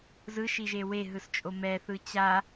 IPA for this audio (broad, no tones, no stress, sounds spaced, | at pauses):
z ɯ ʃ i ʒ e w e ɦ ɯ s t͡ʃʼ o m ɛ θ ɯ t͡ɕ a